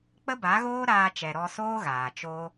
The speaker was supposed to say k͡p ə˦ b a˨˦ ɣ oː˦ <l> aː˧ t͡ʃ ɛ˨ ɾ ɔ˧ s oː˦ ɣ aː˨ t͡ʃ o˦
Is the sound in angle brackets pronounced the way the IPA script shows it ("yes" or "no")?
no